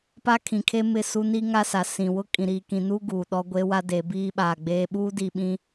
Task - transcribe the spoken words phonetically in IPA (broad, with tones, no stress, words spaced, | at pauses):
pa˦kʰĩ˨kʰe˦mɪ˦˨ su˦ni˦ ŋa˦sa˨sĩ˨ wʊ˦ kʼĩ˨ɾiː˨kĩ˨nuː˦ ɡuː˨ ɗɔ˦ɡʷe˦wa˦ de˨˦biː˦ɓaː˨ɡ͡beː˦ ɓuː˦di˨ ɓĩ˦